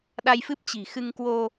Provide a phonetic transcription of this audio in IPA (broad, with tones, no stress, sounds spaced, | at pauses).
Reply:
ɗ a˧ j f ɨ˦˥ p̚ t͡ɕ i̤˨˩ x ɨ˧ ŋ k w o˧